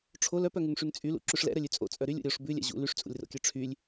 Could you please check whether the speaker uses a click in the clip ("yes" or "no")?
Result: yes